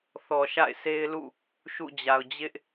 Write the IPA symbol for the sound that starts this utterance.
θ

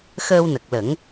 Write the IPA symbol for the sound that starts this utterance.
x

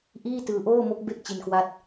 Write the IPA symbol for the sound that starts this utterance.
ʔ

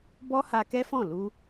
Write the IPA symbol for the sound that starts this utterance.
b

